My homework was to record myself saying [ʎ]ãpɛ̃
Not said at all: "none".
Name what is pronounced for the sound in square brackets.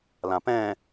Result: l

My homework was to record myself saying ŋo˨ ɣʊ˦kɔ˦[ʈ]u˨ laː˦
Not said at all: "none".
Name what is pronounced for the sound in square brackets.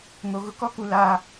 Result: k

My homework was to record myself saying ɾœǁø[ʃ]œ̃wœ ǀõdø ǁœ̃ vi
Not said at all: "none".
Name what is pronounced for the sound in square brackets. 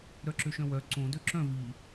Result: ʃ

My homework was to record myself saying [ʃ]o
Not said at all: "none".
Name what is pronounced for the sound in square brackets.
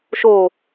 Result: ʃ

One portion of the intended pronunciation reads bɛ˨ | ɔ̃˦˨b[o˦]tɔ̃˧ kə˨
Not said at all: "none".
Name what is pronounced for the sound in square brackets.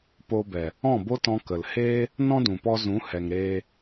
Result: o˦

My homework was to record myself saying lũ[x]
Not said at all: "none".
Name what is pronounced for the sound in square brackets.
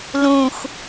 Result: x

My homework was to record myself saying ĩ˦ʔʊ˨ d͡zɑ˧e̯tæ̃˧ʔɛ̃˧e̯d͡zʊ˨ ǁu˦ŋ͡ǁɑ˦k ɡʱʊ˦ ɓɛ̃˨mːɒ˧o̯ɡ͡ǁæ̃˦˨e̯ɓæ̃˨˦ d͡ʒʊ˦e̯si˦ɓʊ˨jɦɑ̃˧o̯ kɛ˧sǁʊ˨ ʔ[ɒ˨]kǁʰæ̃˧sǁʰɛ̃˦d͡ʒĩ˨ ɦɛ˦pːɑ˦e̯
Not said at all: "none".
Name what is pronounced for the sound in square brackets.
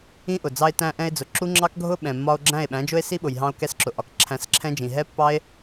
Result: ɒ˨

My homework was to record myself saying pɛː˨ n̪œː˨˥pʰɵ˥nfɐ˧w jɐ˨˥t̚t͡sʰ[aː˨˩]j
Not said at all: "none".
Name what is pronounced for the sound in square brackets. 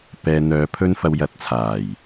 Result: aː˨˩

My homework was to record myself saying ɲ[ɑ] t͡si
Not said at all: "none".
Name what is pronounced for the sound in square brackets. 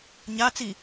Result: a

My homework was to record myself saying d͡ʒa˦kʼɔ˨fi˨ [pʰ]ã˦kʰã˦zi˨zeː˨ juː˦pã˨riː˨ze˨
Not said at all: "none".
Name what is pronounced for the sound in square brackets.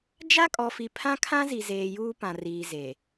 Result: pʰ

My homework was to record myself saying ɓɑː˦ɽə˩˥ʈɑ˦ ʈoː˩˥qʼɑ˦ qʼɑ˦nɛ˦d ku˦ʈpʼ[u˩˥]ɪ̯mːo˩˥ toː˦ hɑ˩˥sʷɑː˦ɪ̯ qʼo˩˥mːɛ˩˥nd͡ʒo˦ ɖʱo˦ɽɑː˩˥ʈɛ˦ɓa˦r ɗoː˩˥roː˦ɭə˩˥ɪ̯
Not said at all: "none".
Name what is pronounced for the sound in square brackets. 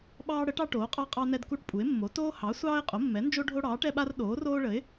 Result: u˩˥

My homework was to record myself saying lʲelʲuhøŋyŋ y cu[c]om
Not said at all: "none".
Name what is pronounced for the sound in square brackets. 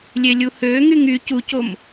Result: c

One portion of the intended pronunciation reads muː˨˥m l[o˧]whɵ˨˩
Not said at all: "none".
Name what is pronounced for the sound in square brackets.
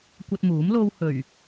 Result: o˧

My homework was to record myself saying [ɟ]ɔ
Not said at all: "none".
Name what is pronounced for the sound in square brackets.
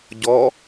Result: ɟ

